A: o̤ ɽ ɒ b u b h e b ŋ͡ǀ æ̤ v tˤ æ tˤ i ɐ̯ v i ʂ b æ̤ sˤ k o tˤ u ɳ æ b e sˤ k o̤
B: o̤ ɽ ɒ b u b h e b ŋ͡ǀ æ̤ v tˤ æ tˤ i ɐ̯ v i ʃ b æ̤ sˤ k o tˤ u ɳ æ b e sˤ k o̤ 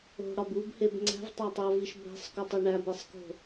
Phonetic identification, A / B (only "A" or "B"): B